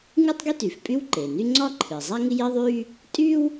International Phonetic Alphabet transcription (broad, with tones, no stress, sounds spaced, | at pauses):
ŋ ɨ˥ tˤ ɡ i˥ t y˩ f pʼ y˥ w ǃ e˩ n y˥ ŋ͡ǀ ɒ˥ ǃʰ ɨ˩ zˤ a˥ ŋ ɪ˥ j ɪ˥ ðˤ y˥ | tʼ y˥ w